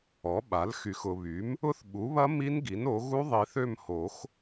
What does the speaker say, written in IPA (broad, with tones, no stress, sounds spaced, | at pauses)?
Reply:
ɔ˩˥ ɓ a˩˥ l x y˨ x ʊ˨ β y˩˥ m | ʊ˦˥ θ ɓ u˩˥ β ɐ˦˥ m i˦˥ n ɡ i˩˥ n o˩˥ ɣ u˦˥ ðˤ i˨ θ ø˦˨ m h o˨˩˦ x